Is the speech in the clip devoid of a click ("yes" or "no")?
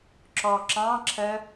no